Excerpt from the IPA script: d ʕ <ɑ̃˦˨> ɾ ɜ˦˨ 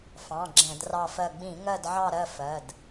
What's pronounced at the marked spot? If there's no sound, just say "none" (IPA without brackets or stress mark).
ɑ˦˨